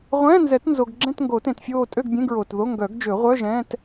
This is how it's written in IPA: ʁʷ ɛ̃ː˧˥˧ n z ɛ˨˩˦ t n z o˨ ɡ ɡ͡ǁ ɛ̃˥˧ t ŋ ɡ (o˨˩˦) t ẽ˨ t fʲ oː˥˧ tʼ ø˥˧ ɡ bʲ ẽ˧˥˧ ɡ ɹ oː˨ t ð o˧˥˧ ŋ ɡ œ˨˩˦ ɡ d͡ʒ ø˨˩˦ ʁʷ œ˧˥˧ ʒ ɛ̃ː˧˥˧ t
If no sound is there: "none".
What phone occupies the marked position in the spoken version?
o˨˩˦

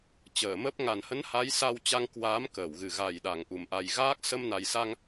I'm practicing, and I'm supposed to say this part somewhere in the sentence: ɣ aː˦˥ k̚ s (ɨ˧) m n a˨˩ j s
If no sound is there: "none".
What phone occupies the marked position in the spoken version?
ə˧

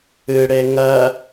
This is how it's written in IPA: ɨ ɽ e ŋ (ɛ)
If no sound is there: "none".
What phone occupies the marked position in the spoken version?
ɜ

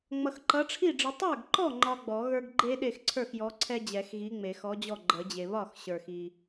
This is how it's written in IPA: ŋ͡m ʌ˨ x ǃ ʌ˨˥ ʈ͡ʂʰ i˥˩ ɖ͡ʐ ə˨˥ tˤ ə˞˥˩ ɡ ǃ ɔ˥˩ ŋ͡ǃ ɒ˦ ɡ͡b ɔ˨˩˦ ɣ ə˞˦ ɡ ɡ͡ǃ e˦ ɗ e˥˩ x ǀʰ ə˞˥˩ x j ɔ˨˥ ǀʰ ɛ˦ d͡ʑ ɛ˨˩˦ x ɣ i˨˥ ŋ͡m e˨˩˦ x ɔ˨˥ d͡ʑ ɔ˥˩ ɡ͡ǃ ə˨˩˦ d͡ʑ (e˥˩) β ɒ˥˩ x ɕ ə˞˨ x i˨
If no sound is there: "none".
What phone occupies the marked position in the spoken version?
e˨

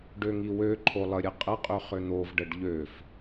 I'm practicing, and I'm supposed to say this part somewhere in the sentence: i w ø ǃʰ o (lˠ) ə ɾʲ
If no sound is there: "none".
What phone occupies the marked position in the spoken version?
lˠ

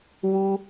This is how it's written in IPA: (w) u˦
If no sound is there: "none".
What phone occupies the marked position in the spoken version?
w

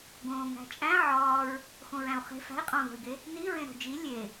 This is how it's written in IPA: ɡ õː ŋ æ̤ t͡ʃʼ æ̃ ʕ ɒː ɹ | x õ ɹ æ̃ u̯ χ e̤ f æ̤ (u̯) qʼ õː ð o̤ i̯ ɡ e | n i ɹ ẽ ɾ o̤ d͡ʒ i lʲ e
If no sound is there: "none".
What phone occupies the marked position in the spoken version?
i̯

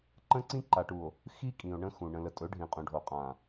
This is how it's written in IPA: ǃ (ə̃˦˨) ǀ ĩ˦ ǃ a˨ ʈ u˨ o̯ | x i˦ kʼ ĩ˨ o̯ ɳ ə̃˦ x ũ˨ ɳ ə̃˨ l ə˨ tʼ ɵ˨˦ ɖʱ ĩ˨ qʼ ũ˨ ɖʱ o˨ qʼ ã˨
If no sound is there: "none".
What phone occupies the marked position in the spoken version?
ə̃˦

